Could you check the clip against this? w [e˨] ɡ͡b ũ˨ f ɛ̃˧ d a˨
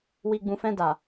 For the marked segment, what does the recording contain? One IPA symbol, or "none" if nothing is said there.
i˨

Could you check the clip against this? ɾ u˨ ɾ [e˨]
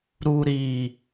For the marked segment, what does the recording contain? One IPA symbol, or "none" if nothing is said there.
i˨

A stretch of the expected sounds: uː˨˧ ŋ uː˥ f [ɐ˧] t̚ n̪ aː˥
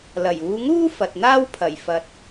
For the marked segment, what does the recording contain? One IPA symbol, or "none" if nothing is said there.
ɐ˨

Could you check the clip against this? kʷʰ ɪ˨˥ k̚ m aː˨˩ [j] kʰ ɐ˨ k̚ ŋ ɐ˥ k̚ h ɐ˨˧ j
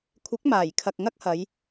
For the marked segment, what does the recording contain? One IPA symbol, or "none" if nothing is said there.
j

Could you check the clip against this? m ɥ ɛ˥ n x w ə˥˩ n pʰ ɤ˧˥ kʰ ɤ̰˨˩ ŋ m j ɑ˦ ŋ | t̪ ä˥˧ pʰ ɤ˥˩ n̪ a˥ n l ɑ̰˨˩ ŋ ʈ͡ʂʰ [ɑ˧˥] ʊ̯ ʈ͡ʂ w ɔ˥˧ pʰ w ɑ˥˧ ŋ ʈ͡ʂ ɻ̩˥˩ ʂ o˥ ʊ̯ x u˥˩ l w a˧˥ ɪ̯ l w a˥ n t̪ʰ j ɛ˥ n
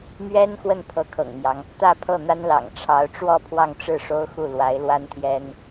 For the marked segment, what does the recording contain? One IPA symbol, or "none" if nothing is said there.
ɑ˧˥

